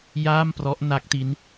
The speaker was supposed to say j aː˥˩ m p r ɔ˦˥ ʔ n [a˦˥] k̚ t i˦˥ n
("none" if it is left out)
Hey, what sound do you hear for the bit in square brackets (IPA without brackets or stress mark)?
a˦˥